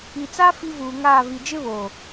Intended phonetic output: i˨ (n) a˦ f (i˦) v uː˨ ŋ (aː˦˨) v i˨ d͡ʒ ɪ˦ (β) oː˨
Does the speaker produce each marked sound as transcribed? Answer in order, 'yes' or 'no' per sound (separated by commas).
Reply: no, yes, yes, yes